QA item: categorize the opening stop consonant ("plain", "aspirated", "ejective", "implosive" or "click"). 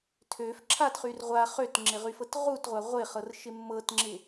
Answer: aspirated